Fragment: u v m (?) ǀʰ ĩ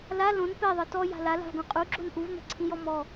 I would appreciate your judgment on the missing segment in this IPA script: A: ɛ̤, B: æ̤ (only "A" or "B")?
A